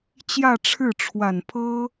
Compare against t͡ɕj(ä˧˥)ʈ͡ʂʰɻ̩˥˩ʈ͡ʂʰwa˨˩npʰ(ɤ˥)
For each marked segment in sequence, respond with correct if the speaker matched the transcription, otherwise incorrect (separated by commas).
incorrect, correct